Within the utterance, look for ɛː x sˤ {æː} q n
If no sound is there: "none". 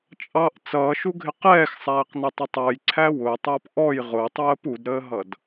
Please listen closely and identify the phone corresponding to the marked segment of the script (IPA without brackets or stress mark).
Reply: æː